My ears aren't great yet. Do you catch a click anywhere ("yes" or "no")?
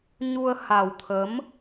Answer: no